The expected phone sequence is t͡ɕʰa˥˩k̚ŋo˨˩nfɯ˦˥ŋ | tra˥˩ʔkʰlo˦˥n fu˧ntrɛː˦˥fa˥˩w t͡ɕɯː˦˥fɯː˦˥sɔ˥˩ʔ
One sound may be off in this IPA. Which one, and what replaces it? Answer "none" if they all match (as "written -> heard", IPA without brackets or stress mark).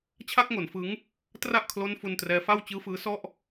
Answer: none